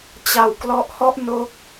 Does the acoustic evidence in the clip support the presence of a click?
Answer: no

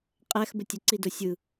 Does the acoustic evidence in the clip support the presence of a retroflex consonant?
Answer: no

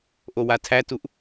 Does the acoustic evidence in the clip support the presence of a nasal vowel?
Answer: no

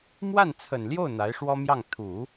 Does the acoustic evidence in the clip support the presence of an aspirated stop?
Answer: yes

